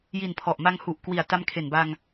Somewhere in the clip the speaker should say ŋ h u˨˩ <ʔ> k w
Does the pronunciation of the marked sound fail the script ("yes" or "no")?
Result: no